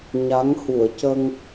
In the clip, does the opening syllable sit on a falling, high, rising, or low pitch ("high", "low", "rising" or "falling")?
rising